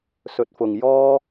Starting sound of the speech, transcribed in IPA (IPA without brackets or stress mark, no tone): s